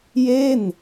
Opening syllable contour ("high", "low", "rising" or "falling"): falling